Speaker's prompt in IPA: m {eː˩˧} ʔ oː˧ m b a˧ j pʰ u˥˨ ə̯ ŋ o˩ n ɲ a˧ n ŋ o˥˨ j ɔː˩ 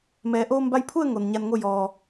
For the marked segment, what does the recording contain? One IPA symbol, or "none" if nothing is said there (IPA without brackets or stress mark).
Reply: ɛː˩˧